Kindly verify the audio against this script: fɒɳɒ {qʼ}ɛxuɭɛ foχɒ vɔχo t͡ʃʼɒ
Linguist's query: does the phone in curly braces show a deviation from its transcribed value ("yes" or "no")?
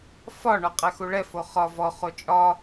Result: no